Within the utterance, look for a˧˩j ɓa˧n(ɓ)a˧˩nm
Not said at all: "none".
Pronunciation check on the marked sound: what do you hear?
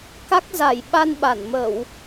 ɓ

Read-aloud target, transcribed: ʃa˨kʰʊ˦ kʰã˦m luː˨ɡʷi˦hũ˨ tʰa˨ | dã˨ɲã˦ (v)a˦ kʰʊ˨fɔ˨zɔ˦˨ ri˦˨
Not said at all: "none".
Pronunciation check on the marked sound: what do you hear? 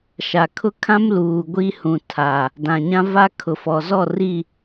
v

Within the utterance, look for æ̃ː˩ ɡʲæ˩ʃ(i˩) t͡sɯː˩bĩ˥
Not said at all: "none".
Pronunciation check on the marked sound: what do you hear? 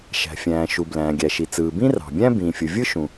i˩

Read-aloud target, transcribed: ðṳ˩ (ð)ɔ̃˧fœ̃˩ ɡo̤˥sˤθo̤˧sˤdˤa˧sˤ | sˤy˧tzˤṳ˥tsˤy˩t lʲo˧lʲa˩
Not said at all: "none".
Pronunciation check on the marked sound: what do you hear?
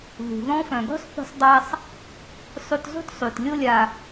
ð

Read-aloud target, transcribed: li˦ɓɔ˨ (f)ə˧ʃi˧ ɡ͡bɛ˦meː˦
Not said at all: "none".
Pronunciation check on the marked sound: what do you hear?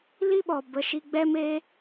b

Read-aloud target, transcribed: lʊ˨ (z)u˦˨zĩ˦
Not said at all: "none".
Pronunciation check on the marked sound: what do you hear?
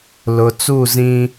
t͡s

